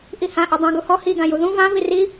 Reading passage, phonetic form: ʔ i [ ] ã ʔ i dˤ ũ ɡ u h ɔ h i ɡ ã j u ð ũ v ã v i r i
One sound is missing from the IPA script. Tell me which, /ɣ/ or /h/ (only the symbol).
h